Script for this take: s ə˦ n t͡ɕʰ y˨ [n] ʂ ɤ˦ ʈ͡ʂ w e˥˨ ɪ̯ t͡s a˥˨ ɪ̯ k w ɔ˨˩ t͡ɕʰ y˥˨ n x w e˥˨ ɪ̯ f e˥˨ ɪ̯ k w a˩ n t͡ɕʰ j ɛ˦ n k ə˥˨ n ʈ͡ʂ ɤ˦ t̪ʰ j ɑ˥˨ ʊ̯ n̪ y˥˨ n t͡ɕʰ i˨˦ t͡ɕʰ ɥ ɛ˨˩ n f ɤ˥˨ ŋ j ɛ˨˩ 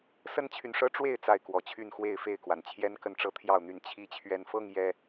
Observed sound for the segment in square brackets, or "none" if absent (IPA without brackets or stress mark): n